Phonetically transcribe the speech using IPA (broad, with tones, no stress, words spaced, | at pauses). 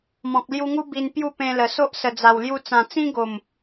mɔ̃˨k̚lju˧ŋu˦ bi˧n pju˥˧pẽ˧lə˨˩so˦ʔ sə˨˩d͡za˨˩wlju˧ t͡sã˨˩t͡sĩ˦ɡo˨˩m